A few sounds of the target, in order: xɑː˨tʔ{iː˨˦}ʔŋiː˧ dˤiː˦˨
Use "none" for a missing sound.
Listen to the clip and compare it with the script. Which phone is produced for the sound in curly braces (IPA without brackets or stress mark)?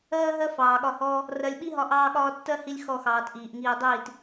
iː˨